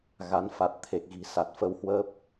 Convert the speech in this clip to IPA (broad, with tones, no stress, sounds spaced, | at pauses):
ɣ a˨˦ n f a˨˩ t̚ t̪ʰ e˨˩ k̚ ɣ i̤˨˩ s a˨˩ t̚ f ə˧ w h w əː˦˥ p̚